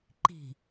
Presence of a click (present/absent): present